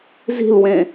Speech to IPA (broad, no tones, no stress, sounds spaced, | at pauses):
z i̤ l w ẽ